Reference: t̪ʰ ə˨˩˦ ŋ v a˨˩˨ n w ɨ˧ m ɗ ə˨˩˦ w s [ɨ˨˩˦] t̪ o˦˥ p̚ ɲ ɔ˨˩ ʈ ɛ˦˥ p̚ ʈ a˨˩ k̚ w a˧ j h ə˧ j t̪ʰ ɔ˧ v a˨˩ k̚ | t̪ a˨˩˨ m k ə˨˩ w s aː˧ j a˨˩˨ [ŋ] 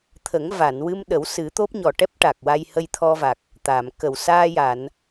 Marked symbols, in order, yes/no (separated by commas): yes, no